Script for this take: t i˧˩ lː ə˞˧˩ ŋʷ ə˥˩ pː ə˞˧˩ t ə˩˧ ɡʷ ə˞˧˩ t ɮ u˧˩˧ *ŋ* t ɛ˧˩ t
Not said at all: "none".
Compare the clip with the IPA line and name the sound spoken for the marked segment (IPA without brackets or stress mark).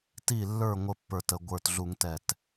ŋ